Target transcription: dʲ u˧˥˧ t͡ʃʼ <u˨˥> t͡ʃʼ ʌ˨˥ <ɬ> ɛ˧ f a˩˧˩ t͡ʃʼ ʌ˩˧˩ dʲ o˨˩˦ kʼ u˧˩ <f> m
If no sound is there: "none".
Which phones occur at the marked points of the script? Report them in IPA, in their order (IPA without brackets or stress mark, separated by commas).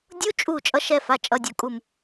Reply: u˧˩, ʃ, none